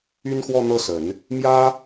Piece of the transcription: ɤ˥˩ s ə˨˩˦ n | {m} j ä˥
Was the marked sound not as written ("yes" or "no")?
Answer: no